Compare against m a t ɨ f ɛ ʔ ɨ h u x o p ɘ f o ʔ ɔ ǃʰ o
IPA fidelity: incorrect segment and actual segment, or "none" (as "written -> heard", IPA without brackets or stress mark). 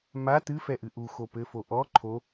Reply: h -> ʔ